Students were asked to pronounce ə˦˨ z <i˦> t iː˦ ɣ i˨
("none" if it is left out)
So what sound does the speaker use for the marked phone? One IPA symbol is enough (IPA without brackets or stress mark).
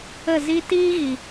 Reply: i˦